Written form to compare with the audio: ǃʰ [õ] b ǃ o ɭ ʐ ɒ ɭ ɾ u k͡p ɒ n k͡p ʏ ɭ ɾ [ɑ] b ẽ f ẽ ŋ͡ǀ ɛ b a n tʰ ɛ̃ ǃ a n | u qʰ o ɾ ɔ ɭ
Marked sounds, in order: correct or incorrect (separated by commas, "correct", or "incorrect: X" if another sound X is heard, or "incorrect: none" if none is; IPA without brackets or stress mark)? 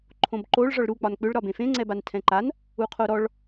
correct, incorrect: ɒ